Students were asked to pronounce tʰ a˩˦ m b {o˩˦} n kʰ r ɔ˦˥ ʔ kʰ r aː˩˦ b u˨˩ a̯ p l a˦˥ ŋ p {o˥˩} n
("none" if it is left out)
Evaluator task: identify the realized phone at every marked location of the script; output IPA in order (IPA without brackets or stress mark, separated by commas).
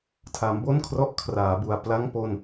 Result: o˥˩, o˧